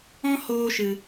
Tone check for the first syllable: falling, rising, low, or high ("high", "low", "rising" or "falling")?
high